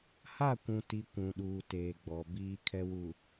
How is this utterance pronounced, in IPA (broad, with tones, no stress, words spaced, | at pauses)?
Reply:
ha˦˨kʷũ˨ti˨ kʷũ˨ɗuː˨teː˨ɡ͡bɔ˨ biː˨kʰɛ˨wu˨